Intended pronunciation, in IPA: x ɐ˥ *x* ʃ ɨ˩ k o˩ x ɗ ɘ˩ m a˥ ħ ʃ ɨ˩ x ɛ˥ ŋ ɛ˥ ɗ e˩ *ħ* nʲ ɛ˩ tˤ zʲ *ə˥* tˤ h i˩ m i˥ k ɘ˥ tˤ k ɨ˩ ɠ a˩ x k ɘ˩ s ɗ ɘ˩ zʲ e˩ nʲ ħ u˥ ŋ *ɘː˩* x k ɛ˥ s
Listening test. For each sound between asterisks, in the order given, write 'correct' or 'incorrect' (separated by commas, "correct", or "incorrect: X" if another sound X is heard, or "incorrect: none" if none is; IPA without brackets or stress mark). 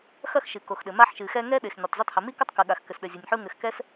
correct, incorrect: x, incorrect: ɛ˥, incorrect: ɘ˩